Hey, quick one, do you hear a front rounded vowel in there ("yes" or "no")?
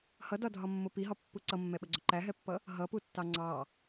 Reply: no